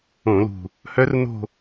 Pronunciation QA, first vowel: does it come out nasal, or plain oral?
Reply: nasal